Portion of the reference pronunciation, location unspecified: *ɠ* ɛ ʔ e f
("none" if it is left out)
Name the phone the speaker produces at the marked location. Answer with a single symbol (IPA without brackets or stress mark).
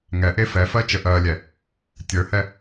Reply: ŋ